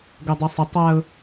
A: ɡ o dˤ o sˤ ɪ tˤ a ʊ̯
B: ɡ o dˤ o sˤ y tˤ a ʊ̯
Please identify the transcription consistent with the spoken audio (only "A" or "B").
A